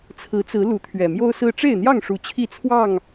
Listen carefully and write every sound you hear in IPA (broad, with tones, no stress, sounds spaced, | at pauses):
t͡sʰ ɹ̩˨˦ t͡s ɹ̩˨˦ l u˨˦ t̪ʰ ɥ ɛ˨˩ m j o˦ ʊ̯ s ɹ̩˦ ʈ͡ʂ e˥˨ ɪ̯ n̪ j ɑ˥˨ ŋ ʂ u˨˩ t͡ɕʰ i˥˨ t͡sʰ w ɑ˥˨ ŋ